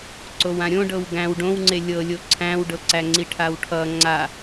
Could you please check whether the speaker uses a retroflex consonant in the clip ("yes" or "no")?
yes